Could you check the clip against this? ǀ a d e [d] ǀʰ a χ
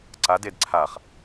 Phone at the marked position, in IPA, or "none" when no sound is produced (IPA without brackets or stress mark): d